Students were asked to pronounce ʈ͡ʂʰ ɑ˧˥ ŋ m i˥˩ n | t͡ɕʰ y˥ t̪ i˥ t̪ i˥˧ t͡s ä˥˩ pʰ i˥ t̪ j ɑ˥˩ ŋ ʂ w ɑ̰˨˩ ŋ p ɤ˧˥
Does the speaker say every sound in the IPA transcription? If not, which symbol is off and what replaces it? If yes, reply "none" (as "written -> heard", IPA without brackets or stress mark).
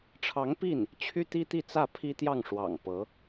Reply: m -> p